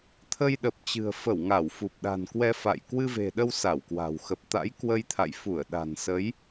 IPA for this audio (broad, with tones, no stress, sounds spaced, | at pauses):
t̪ʰ ə˧ j ɗ ə˨˩ p̚ t͡ɕ ɨ̤˨˩ ə̯ f ə˧˩ w ŋ a˧˩ w f u˨˩ p̚ ɗ a̤˨˩ n k w ɛ˧ f a̰˧˨ j k w ɨ˧ v e̤˨˩ ɗ ə˧ w s a˧˩ w k w a̤˨˩ w x ə˨˩ p̚ t̪ a̰˧˥ j k w ə˧ j t̪ʰ a̰˧˨ j f u˧˩ ə̯ ɗ a̤˨˩ n s ə˨˦ j